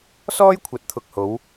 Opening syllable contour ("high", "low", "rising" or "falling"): high